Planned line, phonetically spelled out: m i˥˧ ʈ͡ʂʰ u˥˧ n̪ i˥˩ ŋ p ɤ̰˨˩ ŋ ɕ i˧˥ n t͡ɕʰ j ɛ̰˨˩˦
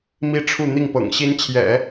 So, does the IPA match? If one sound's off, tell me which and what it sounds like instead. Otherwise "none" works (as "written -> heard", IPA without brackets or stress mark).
none